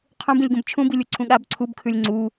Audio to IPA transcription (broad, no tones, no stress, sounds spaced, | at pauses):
qʰ ũ b ĩ lʲ ɡ ũ b t͡ʃʰ ũ b i lʲ u ǀʰ ũ ɠ a b ǀʰ u b kʰ ʉ lʲ ŋ͡ǀ u